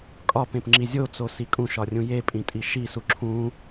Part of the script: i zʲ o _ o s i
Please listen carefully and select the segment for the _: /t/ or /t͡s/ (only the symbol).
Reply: t͡s